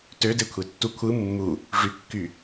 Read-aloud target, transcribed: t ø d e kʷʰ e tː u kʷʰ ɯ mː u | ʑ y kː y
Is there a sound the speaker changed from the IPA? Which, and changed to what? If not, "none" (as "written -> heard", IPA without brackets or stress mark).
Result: ʑ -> ʐ